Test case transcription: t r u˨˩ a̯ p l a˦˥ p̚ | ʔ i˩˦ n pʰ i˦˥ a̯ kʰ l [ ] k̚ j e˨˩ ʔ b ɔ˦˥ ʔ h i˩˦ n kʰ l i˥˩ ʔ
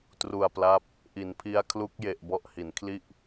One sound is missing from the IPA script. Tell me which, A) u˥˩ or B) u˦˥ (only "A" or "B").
B